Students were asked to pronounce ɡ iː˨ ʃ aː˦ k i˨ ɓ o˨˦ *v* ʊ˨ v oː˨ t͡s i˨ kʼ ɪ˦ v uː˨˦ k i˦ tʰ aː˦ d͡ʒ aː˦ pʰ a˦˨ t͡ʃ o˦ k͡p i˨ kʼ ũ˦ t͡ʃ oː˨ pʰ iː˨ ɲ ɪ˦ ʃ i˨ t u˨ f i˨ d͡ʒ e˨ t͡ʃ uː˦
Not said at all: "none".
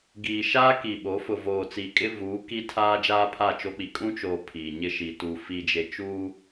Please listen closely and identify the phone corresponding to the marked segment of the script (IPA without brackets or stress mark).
f